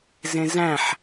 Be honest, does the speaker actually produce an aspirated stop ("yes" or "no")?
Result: no